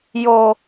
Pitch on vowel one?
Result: low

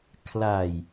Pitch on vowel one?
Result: low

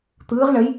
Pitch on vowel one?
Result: rising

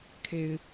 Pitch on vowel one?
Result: low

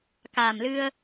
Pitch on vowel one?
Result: low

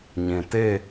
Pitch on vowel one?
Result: low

